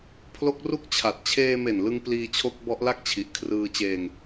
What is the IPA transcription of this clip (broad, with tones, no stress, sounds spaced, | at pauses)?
pʰ l o˦˥ k̚ r u˥˩ k̚ t͡ɕʰ a˨˩ t̚ t͡ɕʰ eː˧ m e˨˩ n l ɯ˧ ŋ p l iː˧ t͡ɕʰ o˦˥ k̚ b ɔ˦˥ ʔ l a˥˩ k̚ t͡ɕʰ i˨˩ ʔ kʰ r ɯː˧ t͡ɕ eː˧ ŋ